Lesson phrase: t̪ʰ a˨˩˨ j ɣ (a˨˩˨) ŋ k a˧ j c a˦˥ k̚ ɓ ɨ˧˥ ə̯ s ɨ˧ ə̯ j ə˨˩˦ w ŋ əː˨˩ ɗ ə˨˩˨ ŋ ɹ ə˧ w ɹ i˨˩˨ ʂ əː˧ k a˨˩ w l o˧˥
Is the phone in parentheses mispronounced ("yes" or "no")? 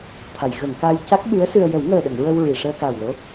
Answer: yes